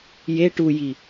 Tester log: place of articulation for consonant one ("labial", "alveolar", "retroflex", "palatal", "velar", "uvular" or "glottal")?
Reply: palatal